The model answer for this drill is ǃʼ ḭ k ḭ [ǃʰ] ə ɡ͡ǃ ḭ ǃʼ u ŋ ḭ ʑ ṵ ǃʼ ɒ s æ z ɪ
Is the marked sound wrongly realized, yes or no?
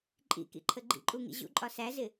no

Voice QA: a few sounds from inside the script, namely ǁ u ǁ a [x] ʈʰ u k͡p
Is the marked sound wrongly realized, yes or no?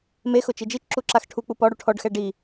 no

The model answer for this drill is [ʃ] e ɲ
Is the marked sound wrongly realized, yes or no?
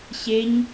yes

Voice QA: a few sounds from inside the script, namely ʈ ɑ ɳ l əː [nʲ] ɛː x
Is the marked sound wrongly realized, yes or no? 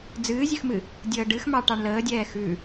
yes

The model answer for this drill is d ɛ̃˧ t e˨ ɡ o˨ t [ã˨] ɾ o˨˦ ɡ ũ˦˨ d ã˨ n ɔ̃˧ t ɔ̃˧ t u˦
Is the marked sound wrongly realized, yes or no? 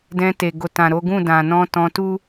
no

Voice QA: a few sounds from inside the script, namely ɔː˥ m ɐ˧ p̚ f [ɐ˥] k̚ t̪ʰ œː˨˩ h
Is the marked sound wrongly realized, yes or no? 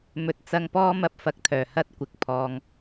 yes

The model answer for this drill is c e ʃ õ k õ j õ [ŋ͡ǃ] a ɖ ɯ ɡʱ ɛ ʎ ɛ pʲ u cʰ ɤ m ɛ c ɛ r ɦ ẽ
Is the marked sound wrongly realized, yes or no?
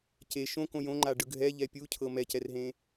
no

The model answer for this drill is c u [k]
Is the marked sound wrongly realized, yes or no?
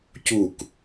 no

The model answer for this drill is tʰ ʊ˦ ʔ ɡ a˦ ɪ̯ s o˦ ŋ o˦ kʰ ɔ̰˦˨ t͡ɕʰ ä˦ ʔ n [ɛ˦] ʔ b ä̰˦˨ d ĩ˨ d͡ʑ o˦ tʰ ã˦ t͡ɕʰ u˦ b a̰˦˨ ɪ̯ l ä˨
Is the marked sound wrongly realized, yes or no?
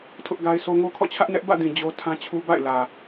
no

